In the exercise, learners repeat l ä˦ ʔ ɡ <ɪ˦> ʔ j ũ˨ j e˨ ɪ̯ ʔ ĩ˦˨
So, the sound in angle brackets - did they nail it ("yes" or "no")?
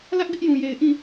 yes